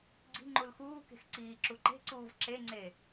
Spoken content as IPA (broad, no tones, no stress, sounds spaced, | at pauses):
ɡ͡ǀ i̤ ŋ͡ǃ u l x uː k e̤ x ǀ iː ǁ u ǃ e̤ ǀ uː v ǁ e ŋ͡ǀ e